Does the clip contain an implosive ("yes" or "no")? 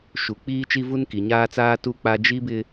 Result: no